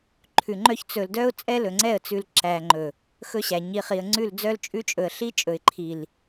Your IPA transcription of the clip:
ǃʰʉ˨ŋ͡ǃœ˦ç t͡sɵ˨ldœ˦ʊ̯ t͡sʼɛ˦lɵ˨ŋ͡ǀɛ˦˨ə̯ t͡sʉ˨l ǁæ˨ŋ͡ǃɵ˨ | xɵ˦ɕæ˨ ɲi˨χi˨ə̯ŋ͡ǀʉ˦˨l d͡zœ˦lt͡ʃʼʉ˦t͡ʃʼɵ˨ə̯ ɬi˦t͡ʃʼɵ˨ɪ̯ǃʰi˨l

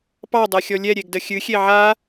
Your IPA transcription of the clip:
pɑdˤɛxʲɔ lʲɛɾʲeɡdə xʲɨxʲe ʕa

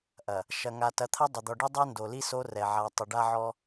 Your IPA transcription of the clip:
ʔɐ˨ | ʃɐ˨ŋa˨ tɐ˨˦t̪ʰɐ˦ dˤʏ˨d̪ɔ˨ɖi˦ dˤɛ˦ndo˨li˦ so˦rɛ˨ʕa˨ tˤʏ˨ɖa˦ʕɔ˦

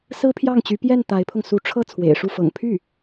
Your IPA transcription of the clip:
sɹ̩˥pʰjɑ˥˩ŋt͡ɕy˧˥ pjɛ˥˩n t̪a˧˥ɪ̯pʰʊ˧ŋ su˧˥ʈ͡ʂʰɤ˥˩ t͡sʰwḛ˨˩ɪ̯ʂu˥˩fɤ̰˨˩ŋ pʰy˥˩

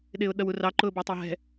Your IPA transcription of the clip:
ɗɪːʊ̯ɗʌwurɑ ǃʊːbɑtˤæɦɛ̤

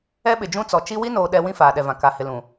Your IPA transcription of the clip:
ɛ˦ɓɪ˨d͡ʒũ˦t͡sɔ˨ t͡ʃi˦ wi˦noː˨ ɗɛ˦ wĩ˦faː˨ɗɛ˨vã˨ ka˨hɪ˨lũ˨

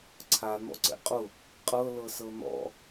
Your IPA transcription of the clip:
ǀʰa n̪ɔ̰ǀɛ̰qʼʊ | qʼɤ lɤsɤn̪ɔ̰

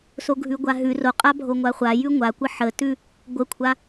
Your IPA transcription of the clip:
soɡʱʉɡʷaɦʉ roqʼabʱo ŋʷaχʷa jʉŋʷakʷə ħətʉ | ɡʷəkʷʰa

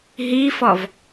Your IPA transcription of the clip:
ɦifɔv

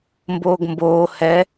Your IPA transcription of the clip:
mboːɡmboː hɛ

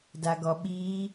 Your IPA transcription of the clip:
daɡɔɓi

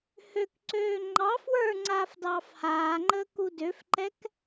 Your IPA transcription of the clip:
høkǀøː ŋ͡ǃɑ fwə˞ŋ͡ǀaːf dɑːfhaːŋ͡ǃəː kudøfǃɛk

